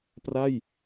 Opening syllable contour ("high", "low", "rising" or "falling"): falling